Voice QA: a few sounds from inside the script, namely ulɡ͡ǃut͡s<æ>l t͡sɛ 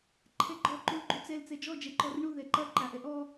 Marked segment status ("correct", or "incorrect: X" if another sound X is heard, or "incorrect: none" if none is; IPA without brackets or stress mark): incorrect: ɛ